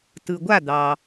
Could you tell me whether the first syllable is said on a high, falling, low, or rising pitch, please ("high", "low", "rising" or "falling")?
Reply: low